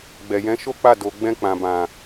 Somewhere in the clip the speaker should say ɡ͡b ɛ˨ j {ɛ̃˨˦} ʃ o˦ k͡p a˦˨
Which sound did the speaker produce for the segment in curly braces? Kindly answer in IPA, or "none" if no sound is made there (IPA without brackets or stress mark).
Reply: ɛ̃˨˦